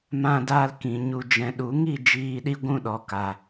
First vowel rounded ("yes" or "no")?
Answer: no